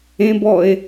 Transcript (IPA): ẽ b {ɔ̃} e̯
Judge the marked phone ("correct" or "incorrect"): incorrect